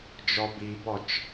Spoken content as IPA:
d͡ʒ ɔ b i b ɔ t͡ʃ

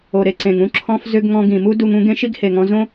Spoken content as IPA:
o˩ ɾ e˩ ǀ ẽ˩ ŋ ũ˥ ǁʰ ɔ̃˧ f z ʏ˧ ɡ ŋ ɔ̃˧ ɡ ĩ˩ m u˥ d u˧ ŋ ũ˥ ɡ ẽ˥ ʃ i˥ ɡ h e˩ ŋ ɔ̃˧ z õ˥

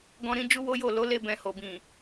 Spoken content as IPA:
ɡ ɔ̃˦ ɾ ĩ˦ d͡ʒ u˦ w o˦ j o˦˨ l o˨˦ l e˧ b ɛ̃˨ h o˨ b ĩ˨

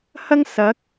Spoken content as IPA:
h ɐ˥ ŋ s ɐ˨˥ k̚

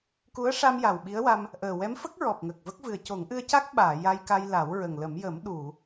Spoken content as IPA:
k u˧˥ ə̯ ʂ a˧ m j a˨˩ w ɓ i˧˥ ə̯ w a˧ m | ʔ əː˨˩ w ɛ˧˥ m f ə˦˥ k̚ ɹ ɔ˨˩ p̚ ŋ ə˨˩ k̚ v ə˦˥ k̚ v ɨ˨˩ ə̯ c o˨˩˦ ŋ ʔ ɨ˧ ə̯ c a˦˥ k̚ ɓ aː˨˩˨ j a˧ j k a˧ j l a˨˩˦ w ɹ ə˨˩ ŋ l ə˨˩˦ m j ə˨˩˦ m ɗ u˨˩˨

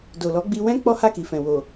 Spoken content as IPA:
d o˨ l ɔ˨˦ ɡ͡b i˧ w ɛ̃˦ k͡p ɔ˦ h a˦˨ k i˨ f ɛ̃˨ w o˨

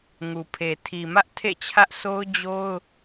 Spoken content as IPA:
ŋ u˨ pʰ e˨ tʰ i˨ m ä˦ ʔ tʰ ḛ˦˨ t͡ɕʰ ä˦ ʔ s o˦ ʊ̯ d͡ʑ o˦ ʊ̯

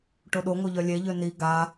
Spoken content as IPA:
ʈ o ɗ o ŋ o ʎ œ lʲ e ʎ ø n i ɡ a

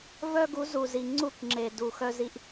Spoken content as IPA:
v œ˦ ɡ u˨˦ z u˨ z i˨ ŋ͡ǀ u˦˨ k ŋ͡ǁ e˨ d u˨ x œ˦ z i˦ ʔ

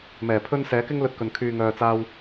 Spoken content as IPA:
m ɛː˨˩ pʰ ɵ˧ n s ɛː˨˥ k ɪ˥ ŋ l ɵ˧ t̚ k ɵ˨ n kʰ yː˨ ŋ œː˨ t͡s aː˧ w

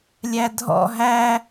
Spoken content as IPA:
lʲ æ dʱ ɔ̰ ɦ æ

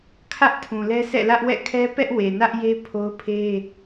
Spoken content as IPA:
kʰ ä˦ ʔ tʰ ũ˨ l ɛ˦ s ɛ̰˦˨ l ä˦ ʔ w ɛ̰˦˨ kʰ ɛ˦ p ɛ˦ ʔ w e˨ n ä˦ ʔ j e˦ pʰ o˦ ʊ̯ pʰ e˦

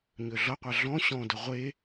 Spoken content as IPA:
ɲ ø ɮ ʌ qʷ a ɮ ɔ̃ ɕ ɔ̃ d ʌ ʁʷ e

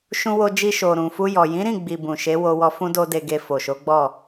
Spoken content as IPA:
ʃ ũ˧ w o˧ d͡ʒ i˧ ʃ o˨ ɾ ũ˨ f u˧ j ɔ˨ j ĩ˨˦ ɾ ĩ˦˨ ɡ͡b i˨ b ũ˨ ʃ e˨˦ w o˧ w ɔ˧ f ũ˦ d o˦ d e˧ ɡ e˧ f o˨ ʃ o˨˦ ɡ͡b ɔ˦˨

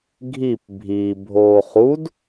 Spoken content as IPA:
ɡʱ i p bʱ i bʱ oː χ u d

